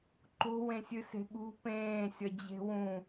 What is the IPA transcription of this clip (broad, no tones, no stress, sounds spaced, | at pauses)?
ǃ o̤ w ẽ sʲ ɨ s e̤ ɠ ṳ p ẽː sʲ ʌ d͡ʑ e̤ w ũ